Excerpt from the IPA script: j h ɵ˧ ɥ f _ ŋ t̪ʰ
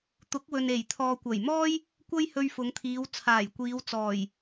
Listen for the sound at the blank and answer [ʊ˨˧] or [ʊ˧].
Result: ʊ˨˧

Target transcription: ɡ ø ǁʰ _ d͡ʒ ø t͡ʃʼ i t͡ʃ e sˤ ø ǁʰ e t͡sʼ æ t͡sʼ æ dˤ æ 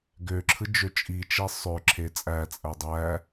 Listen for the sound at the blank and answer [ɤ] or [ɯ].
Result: ɯ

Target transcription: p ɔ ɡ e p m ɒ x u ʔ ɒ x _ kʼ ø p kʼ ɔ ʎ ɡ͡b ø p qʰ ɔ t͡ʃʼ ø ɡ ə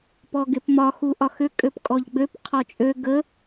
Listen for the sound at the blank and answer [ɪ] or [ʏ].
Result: ʏ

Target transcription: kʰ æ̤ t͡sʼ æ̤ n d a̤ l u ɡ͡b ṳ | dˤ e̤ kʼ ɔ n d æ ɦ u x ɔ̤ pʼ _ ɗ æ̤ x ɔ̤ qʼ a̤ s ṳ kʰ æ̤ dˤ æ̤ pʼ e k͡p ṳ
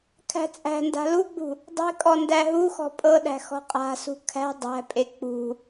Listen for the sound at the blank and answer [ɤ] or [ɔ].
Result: ɤ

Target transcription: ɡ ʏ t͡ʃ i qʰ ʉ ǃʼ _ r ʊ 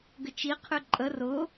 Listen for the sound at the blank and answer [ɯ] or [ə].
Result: ə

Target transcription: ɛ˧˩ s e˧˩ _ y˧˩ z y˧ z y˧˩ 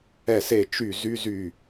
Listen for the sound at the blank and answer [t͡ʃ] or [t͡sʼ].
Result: t͡ʃ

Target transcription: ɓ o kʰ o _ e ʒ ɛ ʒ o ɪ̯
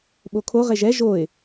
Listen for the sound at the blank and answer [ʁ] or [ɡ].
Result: ʁ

